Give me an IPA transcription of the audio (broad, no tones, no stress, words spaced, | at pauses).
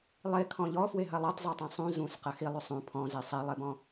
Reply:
lˠekʰɔ̃ ʎɔfweɦɐ lˠetˤzˤetˤẽ sˤũ zũsqɐ xilˠʉ sˤũ pʰɔ̃ze sˤelˠebɔ̃